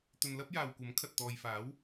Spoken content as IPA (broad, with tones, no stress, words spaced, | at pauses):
t̪ɵ˨nlɐ˥p̚ jaː˨wkʷɐ˨˥mkʰɐ˨t̚ t̪ɔː˨jfaː˨˥w